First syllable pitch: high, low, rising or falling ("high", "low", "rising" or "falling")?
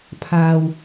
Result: low